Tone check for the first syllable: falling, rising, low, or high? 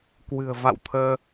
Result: low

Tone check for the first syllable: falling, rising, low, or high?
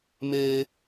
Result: high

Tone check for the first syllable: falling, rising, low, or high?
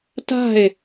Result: falling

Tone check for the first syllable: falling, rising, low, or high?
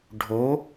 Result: rising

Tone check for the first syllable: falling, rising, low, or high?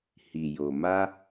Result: low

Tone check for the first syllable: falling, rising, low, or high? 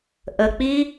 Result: low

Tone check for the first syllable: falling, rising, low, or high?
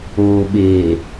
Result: low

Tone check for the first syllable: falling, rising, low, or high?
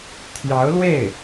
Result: rising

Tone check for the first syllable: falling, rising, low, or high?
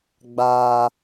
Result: low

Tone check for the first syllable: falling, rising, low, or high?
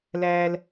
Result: high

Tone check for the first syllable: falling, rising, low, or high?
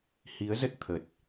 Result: rising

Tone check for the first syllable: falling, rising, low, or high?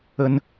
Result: high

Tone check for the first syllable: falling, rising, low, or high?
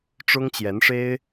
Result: high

